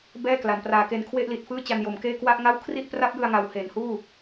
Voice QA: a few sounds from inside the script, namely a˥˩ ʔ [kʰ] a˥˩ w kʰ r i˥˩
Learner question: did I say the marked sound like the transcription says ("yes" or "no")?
no